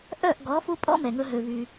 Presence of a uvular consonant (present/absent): absent